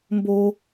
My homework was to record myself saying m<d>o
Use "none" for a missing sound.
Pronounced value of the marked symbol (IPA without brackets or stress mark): b